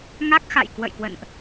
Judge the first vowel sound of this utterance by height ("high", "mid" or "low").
low